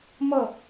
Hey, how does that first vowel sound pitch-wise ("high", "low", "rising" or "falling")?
falling